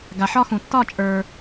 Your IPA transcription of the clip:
ɡ a˧ ħ ɒ˥ x ũ˧ tː ɒ˥˧ t͡ʃʼ ə˞˧

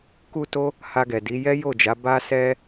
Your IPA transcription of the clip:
k u˦ t o˦ | h a˧ ɡ ɛ˨ d i˨˦ j ɛ˦ j o˦˨ d͡ʒ a˨˦ b a˦ s ɛ˦

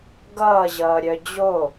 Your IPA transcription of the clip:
ɡ ʌː ʑ ʌː ɾʲ œ d͡ʑ o

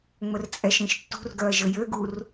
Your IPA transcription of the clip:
ŋ͡m ə r t͡sʼ ɛ ʃ ĩ ʃ tː ṳ r ɡ œ ɐ̯ ʒ ə j ø ɡ u r

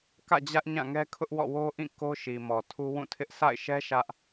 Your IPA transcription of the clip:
k ä̰˦˨ d͡ʑ ä˦ ʔ ɲ ã˦˨ ŋ ɛ˦ kʰ ʊ˦ ʔ w ɔ̰˦˨ w o˦ ʔ ĩ˦˨ k o˦ ʃ i˨ m ɔ˨ tʰ u˦ w ũ˦˨ tʰ ɪ˦ ʔ s a̰˦˨ ɪ̯ ʃ ɛ˦ ʃ ä˦ ʔ

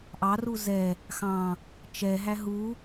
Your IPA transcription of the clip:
ʔ ɑ r u z ɛ | x ɑ̃ | t͡ʃ ɛ ɦ æ ɦ u

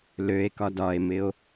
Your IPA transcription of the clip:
l ø e̯ k ɒ d ɒ e̯ m ɪ o̯

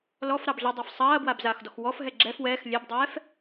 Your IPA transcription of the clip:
l ɔ f ɾ ɑ b ɮ ɪ dˤ ɛ f sˤ ɐː b w a b z aː x d ɔ x w ɔ f ɦ ɛ ɡ͡ǁ ɛ f w ɛː x lʲ ɛ b dˤ ɛː f

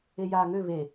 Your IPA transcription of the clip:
e j aː ŋ ø β e

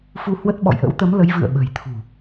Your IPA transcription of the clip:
f u˧ h w ə˦˥ t̚ ɓ ɔ̰˧˨ j ʔ ə̰˧˥ w t̪ ə˨˦ m l ə˨˦ j v ɨ̰˧˨ ə̯ ɓ ə̤˨˩ j t̪ʰ ṳ˨˩

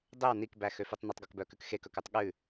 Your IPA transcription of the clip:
dˤ e w n i k b æ x ø f i tˤ n ɵ tˤ ɡ ɔ k b œ k ʉ k x e k ɵ k ʉ tˤ ɠ ʉ

